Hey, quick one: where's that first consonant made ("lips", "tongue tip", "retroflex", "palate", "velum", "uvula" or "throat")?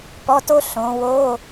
lips